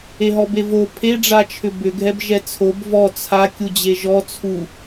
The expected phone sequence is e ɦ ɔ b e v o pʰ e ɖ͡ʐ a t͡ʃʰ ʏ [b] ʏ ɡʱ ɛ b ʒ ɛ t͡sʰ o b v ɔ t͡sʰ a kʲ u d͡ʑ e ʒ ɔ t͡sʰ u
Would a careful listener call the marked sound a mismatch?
no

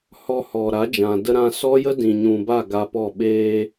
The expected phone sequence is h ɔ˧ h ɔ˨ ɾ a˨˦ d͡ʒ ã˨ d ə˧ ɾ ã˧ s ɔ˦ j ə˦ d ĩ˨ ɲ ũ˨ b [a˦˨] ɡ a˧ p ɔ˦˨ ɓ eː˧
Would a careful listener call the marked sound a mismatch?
no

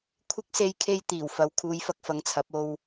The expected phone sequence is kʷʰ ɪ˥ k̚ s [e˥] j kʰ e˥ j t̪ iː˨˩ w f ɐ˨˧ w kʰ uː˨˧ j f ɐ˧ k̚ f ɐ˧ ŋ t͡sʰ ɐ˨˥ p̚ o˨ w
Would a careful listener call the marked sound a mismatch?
no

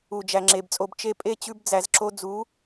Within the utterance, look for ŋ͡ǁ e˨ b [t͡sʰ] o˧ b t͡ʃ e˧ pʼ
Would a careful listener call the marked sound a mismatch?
yes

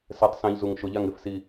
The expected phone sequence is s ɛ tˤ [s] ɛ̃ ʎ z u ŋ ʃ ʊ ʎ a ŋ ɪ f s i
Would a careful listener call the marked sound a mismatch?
no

